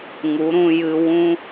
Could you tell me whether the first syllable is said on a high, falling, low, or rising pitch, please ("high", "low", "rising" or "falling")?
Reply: rising